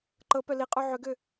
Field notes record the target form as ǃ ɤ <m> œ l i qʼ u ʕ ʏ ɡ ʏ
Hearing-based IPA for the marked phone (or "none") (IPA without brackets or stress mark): p